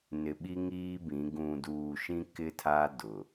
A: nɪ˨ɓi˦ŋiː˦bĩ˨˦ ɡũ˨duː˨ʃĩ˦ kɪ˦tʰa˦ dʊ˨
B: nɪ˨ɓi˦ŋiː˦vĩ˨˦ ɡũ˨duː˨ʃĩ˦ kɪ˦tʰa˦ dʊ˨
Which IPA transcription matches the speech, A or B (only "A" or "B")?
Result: A